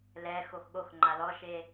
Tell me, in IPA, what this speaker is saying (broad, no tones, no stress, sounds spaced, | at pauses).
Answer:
l ɛ x o x ɠ o x ŋ͡ǃ a l ɔ ʃ e